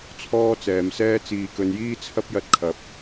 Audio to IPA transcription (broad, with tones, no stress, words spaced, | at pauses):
t͡sʰɔː˥t͡sɛː˨˧msɛː˥ t͡siː˨kɵ˨˧njiː˥t͡sʰɐ˥p̚ jɐ˧t̚kʰɐ˨˥p̚